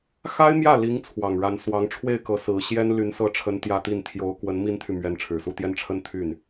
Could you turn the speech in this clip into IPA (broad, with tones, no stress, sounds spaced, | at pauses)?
x a˥ ɪ̯ m j ä˥˩ l i˧˥ ŋ t͡sʰ w ɑ˨˩ ŋ ɻ a˧˥ n s w ɑ˧˥ ŋ ʈ͡ʂʰ w e˥˩ ɪ̯ k ɤ˧˥ s ɹ̩˧˥ ɕ j ɛ˥ n l y˧˥ n s ɤ˧˥ ʈ͡ʂʰ ə˧˥ n t̪ j ä˥ t̪ i˥˩ n t̪ʰ j o˧˥ ʊ̯ k w ə˧˥ n m i˥ n t̪ʰ y˨ m ɥ ɛ˧˥ n ʈ͡ʂʰ ɻ̩˨˩ s u˥˧ t̪ j ɛ˥˧ n ʈ͡ʂʰ ə˥˧ n t̪ʰ y˥˩ n